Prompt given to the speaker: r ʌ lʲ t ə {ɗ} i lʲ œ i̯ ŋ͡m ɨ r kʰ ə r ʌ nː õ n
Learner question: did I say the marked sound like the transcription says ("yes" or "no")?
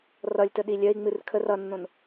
yes